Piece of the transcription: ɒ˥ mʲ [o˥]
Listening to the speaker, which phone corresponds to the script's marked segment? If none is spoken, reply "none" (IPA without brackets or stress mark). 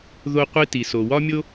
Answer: o˥